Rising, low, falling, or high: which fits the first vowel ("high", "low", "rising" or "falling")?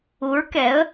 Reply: rising